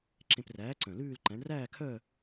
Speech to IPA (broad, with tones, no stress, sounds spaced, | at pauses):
ǁ ẽ˧ p r æː˨˥ ǀ œ̃˨˩ l ʉː˥˧ l ǃ æ̃˨˥ ɳ r æː˥˧ kʰ œ˥˧